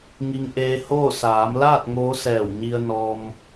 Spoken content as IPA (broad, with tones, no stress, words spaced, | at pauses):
ŋi˧ŋʔeː˧hoː˥˨ saː˩˧mlaː˥˨t̚ ŋoː˧˥sɛː˧˩wɲi˧ə̯nɔː˧m